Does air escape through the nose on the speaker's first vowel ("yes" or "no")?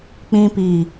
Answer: yes